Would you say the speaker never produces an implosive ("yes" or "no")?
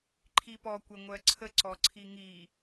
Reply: yes